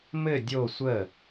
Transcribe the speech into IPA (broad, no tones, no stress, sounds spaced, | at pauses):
m ɘ dʲ o sʷ ə